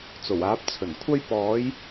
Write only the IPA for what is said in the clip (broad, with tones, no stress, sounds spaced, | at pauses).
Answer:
t͡s o˨˩ w aː˨˥ p̚ t͡sʰ ɵ˨˩ n kʷʰ ɐ˥ j p ɔː˨˥ j